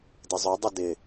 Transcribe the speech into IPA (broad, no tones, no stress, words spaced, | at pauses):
dɪzˤœ dˤudɪ